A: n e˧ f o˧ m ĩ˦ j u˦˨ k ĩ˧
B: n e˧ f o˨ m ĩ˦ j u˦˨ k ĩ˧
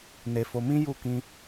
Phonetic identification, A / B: A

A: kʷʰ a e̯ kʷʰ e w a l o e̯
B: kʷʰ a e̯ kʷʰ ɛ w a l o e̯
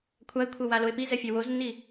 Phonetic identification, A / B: B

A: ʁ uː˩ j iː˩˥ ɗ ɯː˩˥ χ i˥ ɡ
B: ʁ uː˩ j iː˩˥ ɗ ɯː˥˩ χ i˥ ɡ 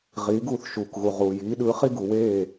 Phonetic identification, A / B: A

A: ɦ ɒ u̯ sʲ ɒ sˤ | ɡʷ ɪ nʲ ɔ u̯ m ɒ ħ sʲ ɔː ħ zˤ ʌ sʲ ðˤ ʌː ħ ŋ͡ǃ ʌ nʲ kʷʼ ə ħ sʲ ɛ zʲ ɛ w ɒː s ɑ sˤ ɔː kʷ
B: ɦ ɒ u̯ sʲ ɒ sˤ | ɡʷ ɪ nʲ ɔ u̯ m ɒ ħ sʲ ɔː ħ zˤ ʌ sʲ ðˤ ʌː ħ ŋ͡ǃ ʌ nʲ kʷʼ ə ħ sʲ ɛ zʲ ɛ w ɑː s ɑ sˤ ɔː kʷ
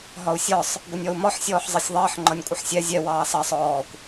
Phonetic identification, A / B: B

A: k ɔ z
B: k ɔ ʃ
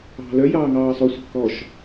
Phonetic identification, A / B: B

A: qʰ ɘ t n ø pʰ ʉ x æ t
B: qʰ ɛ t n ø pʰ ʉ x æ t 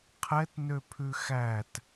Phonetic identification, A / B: B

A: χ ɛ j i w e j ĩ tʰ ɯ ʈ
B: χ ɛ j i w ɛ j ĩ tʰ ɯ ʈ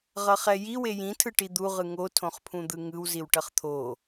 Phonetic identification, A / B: A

